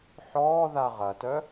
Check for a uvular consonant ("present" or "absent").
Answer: present